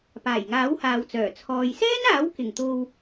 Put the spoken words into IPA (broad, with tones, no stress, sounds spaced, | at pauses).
p aː˨˩ j ŋ aː˨˥ w h aː˨ w t͡s œː˨˩ t͡sʰ ɔː˨ j s ɛː˥ n aː˨˥ w k ɪ˨˩ ŋ t̪ o˧ w